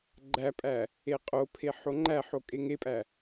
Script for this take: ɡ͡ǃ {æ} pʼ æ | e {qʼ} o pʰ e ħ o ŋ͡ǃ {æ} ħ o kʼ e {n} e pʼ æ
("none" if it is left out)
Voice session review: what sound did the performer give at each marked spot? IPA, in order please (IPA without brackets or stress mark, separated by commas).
æ, qʼ, æ, ŋ